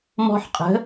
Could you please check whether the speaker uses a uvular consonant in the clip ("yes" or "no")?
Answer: yes